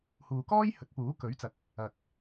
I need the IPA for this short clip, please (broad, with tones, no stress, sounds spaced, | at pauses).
h uː˨ k ɔː˥ j h ɵ˨˥ t̚ p uː˨˥ k ɵ˨˥ ɥ t͡s ɐ˨˥ k̚ | ɐ˨ k̚